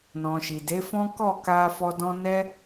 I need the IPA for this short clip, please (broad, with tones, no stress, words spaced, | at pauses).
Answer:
nɔ̃˨ʃi˨de˨˦fɔ̃˦ kɔ˦˨ka˧fɔ˧ dɔ̃˦ nɛ˦